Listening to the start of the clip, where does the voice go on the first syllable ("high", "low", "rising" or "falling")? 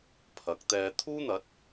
rising